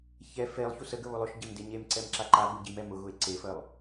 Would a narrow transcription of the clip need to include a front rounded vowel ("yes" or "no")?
no